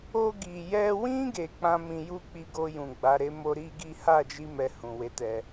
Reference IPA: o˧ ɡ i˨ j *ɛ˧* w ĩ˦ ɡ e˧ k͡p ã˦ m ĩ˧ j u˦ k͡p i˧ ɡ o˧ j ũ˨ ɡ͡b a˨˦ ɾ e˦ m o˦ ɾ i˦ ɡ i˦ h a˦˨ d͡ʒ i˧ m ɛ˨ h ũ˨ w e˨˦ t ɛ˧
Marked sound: correct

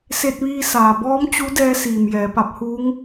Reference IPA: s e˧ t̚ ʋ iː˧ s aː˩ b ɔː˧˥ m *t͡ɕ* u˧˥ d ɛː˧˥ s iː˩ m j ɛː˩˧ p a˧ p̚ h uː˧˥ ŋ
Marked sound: correct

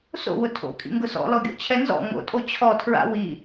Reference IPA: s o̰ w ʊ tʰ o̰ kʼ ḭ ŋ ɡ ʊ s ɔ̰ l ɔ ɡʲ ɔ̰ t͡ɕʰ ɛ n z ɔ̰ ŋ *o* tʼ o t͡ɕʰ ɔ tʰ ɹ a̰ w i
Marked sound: incorrect: o̰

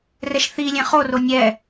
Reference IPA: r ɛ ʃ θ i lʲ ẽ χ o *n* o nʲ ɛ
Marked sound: incorrect: r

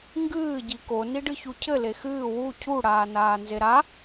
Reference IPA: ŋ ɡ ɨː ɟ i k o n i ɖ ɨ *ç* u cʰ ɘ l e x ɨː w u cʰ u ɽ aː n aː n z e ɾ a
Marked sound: correct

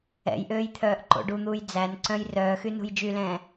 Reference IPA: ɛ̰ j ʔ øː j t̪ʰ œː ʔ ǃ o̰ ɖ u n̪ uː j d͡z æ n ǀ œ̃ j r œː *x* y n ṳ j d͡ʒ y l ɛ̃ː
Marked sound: correct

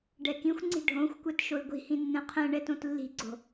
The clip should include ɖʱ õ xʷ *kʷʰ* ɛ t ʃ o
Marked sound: incorrect: kʷ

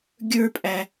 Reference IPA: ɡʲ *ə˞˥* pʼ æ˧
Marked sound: correct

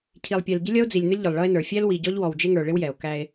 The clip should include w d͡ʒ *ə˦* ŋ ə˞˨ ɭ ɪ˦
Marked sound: incorrect: ɪ˦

